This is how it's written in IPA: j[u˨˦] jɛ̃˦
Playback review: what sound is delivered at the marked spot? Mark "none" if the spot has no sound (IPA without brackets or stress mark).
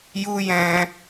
u˦